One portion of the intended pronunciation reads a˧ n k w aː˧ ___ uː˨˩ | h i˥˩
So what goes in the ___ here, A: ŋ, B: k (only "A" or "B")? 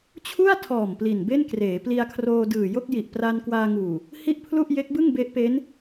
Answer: A